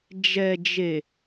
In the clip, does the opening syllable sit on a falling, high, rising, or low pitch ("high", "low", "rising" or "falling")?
low